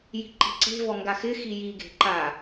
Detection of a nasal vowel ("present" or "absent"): absent